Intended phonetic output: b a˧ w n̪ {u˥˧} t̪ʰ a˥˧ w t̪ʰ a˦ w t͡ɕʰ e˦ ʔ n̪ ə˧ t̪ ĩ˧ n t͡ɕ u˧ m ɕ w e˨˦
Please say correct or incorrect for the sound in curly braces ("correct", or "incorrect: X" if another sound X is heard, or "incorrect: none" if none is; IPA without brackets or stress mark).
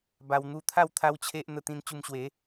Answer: correct